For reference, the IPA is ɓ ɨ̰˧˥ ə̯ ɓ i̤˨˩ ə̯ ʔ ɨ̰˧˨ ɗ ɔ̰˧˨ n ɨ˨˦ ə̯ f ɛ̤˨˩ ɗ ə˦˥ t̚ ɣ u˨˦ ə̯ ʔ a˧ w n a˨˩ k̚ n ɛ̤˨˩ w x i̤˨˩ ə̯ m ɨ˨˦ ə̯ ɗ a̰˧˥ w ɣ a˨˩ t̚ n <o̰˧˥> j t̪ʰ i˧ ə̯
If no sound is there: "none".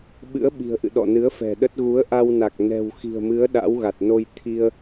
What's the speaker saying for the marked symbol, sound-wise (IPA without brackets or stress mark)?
o˧